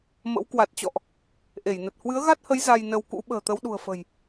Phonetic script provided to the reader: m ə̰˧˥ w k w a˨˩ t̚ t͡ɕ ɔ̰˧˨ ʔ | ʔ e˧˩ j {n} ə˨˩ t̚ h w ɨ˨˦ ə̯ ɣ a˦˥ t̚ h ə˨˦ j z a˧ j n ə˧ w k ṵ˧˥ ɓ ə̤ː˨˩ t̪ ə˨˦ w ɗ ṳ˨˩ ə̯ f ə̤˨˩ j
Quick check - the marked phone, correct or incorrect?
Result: correct